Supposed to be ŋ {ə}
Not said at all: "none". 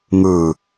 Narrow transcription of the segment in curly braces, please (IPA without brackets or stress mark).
ɯ